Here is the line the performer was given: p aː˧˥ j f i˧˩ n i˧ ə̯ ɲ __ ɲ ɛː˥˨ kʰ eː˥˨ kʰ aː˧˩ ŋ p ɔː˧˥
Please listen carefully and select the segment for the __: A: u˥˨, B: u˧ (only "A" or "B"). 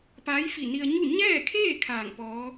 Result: A